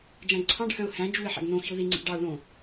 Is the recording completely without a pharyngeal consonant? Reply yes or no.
no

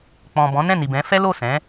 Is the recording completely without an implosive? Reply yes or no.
yes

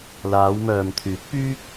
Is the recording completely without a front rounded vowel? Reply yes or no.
no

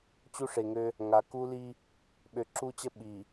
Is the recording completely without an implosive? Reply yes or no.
no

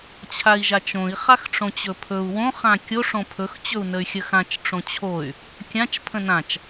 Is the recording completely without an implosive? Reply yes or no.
yes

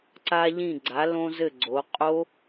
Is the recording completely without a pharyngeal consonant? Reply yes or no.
yes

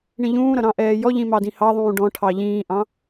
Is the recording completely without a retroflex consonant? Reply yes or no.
no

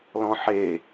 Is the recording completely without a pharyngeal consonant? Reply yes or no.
no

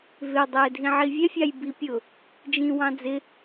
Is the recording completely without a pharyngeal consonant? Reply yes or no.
no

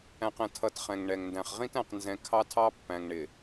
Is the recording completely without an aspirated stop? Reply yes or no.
no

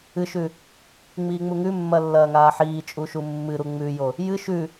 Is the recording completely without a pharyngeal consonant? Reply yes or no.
no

